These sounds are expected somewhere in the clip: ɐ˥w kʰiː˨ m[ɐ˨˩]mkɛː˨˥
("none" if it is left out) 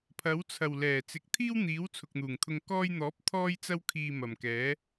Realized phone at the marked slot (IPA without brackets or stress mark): ɐ˨˩